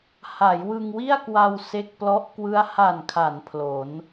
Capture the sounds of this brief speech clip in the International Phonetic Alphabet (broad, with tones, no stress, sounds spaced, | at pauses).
h a˩˦ j w ɯ˧ ŋ w i˥˩ a̯ k w a˧ w s e˦˥ k̚ p l ɔ˦˥ ʔ k w ɯ˦˥ a̯ h a˨˩ n kʰ a˩˦ n pʰ l o˩˦ n